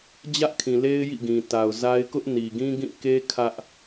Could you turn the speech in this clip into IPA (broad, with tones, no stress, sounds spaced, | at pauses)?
d͡ʑ ä˦ ʔ kʰ ĩ˨ l e˦ ɪ̯ j ḭ˦˨ ɡ ĩ˨ t a˨ ʊ̯ z a˦ ɪ̯ k ʊ˦ ʔ n i˨ ɡ ĩ˦ ɡ ĩ˦˨ k e˦ kʰ ä˦ ʔ